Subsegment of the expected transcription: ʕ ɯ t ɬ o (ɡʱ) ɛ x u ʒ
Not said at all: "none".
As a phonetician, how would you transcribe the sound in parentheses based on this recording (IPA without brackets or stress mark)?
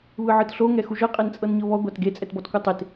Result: ŋ